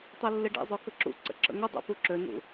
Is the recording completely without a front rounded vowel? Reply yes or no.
no